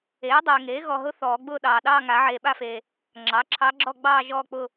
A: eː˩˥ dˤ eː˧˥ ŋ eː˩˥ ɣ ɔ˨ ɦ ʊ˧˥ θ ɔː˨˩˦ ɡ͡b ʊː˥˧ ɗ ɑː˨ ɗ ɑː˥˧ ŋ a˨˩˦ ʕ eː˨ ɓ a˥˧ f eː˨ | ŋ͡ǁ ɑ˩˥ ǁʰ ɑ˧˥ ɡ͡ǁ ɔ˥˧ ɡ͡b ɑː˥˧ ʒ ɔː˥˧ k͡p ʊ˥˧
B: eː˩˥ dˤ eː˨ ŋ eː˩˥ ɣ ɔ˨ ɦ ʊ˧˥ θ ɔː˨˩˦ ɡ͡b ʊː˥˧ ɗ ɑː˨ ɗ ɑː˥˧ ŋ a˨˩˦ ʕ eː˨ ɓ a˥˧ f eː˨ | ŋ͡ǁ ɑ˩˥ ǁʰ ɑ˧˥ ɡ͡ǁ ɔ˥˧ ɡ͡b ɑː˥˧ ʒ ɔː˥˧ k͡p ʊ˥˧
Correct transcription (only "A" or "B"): B